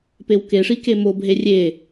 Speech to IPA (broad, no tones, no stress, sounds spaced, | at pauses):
p e w k e ʂ i k e m o b ɦ e rʲ e